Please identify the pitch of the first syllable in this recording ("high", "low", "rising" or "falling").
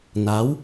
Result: rising